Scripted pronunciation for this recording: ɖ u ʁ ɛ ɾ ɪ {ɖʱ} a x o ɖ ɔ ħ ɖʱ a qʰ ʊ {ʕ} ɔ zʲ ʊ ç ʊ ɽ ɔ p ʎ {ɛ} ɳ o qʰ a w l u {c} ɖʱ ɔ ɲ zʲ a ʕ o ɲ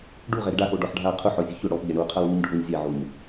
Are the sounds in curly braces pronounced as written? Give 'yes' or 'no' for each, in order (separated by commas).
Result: no, no, yes, no